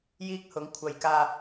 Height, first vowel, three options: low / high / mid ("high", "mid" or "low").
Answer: high